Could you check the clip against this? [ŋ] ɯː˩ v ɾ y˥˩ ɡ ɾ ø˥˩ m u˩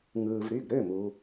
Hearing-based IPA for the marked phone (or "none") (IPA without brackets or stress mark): ŋ